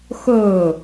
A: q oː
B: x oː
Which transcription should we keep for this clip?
B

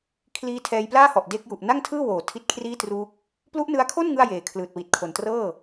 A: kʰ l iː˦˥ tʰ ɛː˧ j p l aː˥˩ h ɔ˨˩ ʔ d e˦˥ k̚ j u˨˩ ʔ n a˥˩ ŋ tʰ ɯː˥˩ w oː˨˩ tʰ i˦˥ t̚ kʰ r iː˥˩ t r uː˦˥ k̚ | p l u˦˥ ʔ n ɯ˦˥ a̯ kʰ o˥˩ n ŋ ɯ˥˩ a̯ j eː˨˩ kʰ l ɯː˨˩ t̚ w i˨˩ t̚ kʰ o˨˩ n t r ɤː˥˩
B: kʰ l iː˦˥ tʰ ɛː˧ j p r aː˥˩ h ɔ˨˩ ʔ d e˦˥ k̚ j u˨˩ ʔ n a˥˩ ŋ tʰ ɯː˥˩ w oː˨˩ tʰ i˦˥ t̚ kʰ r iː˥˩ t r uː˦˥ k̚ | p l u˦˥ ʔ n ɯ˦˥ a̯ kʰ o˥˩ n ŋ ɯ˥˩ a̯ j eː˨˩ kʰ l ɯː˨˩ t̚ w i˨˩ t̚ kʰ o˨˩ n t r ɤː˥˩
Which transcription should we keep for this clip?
A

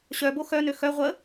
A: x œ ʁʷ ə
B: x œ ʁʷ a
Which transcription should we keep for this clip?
A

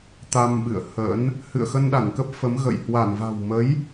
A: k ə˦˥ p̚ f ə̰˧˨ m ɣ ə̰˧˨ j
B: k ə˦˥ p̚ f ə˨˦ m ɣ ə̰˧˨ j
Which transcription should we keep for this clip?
B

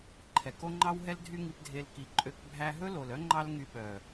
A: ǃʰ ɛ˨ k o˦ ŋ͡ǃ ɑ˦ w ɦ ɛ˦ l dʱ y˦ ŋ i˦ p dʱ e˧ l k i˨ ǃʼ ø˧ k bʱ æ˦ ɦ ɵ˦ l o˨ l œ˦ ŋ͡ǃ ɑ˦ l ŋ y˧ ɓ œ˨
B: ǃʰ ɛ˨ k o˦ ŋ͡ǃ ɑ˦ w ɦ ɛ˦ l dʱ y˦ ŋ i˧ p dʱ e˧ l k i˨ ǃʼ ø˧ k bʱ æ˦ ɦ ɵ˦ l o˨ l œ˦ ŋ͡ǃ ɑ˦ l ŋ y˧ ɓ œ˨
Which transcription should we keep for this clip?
B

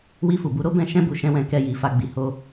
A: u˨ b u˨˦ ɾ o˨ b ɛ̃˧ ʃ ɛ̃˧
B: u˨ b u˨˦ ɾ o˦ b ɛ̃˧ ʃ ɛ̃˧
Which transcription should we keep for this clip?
B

